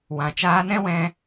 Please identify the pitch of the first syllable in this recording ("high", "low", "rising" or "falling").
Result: low